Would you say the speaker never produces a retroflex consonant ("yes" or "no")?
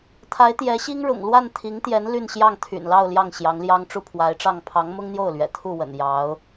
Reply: no